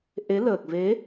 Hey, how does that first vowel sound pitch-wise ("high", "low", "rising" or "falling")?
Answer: rising